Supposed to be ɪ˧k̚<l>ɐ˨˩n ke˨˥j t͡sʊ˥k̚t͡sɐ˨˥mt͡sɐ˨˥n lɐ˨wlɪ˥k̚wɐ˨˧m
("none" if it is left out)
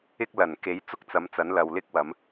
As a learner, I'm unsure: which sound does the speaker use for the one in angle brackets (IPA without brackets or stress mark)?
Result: l